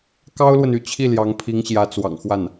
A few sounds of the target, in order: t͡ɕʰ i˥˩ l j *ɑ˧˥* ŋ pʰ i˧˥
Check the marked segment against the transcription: correct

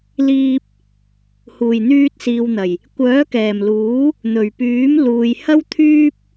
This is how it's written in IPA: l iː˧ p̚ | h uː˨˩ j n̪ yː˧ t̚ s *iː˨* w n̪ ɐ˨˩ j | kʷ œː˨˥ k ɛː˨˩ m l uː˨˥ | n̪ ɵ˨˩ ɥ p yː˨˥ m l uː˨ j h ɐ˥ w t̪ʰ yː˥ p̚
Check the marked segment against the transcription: correct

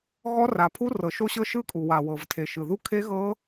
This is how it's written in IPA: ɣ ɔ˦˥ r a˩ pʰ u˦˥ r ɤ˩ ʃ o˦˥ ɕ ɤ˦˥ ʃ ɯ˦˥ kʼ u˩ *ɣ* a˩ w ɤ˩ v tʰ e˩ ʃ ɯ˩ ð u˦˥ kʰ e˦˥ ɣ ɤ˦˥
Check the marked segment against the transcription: incorrect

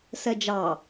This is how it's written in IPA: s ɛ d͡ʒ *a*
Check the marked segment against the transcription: incorrect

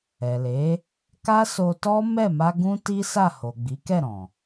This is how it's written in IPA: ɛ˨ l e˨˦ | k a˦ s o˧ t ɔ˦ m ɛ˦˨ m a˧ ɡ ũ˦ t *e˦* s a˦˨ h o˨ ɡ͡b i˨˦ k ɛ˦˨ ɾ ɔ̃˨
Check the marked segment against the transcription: incorrect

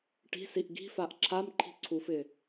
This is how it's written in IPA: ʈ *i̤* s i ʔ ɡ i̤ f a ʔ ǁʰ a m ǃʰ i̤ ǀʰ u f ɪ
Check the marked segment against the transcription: correct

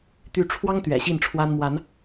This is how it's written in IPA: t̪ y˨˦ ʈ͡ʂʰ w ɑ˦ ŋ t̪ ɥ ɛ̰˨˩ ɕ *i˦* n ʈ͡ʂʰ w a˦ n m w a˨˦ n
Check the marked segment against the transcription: incorrect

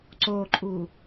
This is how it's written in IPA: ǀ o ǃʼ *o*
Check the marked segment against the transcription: incorrect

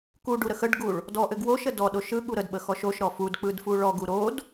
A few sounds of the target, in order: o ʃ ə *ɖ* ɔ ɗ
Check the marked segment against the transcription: incorrect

